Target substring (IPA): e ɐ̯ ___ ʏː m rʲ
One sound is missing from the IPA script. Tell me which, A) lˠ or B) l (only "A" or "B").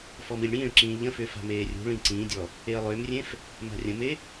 A